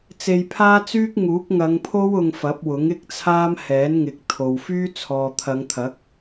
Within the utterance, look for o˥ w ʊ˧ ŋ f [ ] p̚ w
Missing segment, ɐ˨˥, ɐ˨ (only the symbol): ɐ˨˥